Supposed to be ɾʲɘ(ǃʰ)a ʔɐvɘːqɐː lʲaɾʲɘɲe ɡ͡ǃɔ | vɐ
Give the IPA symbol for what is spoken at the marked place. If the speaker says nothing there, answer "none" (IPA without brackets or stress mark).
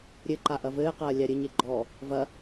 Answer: ǃ